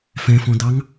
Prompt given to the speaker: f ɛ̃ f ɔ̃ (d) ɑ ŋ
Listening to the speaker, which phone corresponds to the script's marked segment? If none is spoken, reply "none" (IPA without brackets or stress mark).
d